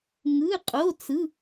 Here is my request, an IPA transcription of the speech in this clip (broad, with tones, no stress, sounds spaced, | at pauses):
ŋ ɯ˧˥˧ qʼ o˧˥˧ t͡s ɯ˧˥˧